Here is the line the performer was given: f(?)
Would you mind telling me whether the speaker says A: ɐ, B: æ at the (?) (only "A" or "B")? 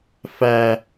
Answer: B